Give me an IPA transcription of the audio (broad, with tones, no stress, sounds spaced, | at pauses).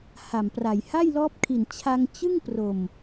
h a˨˩ m p r a˨˩ j h a˥˩ j l ɔː˦˥ p̚ kʰ i˨˩ n t͡ɕʰ a˧ ŋ t͡ɕ ɯ˥˩ ŋ p r o˨˩ m